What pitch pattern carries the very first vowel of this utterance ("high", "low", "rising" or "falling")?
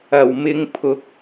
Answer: low